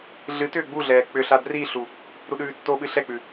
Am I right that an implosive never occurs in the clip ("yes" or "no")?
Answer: no